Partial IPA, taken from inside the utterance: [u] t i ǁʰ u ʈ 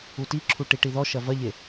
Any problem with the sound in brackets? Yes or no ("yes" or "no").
no